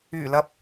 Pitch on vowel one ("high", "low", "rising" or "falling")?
low